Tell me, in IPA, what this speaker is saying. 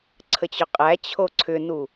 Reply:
ǀʰət͡ɕʏqʼæ t͡ɕʰoǀʰʏnu

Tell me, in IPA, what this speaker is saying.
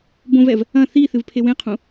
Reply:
bõvɛv | ɐ̃ θi θɨvpʰewẽqʰũ

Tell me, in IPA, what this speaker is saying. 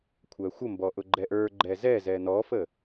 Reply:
kʷʰæxʷəmbɔʔʊ ɡ͡ǃɛʔə˞ ɡ͡ǃɛzɛzɛ nɔfə

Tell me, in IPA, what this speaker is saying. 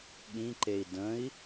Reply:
ɠĩǃei̯ də̃i̯

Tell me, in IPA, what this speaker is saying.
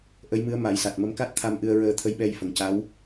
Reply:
ʔə˧˥jmɨ˧˥ə̯ ma˨˩˦jsa˨˩t̚ mə˧mka˦˥t̚t̪ʰa˧m ʔɨ˧ə̯ ɹəː˧t̪ʰə˧˥jɓɛ˧jfə˨˩ŋ ca˧˥w

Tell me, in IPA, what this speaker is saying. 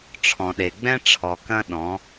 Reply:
ʈ͡ʂʰɔ̃˨ɗe˨ɡ͡bɛ̃˦ ʈ͡ʂʰɔ˨ kɐ̃˦ ɗɔ̃˨˦

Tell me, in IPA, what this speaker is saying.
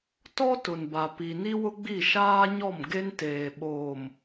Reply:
tɔ˦ tʊ˨nba˨ pi˨ni˦wʊ˦ɡ͡bi˦˨ ʃaː˦ɲɔ˦˨m ɡe˦nteː˨ ɓoː˨m

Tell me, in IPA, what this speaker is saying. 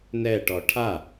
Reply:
nɛʈɔ ʈʰa

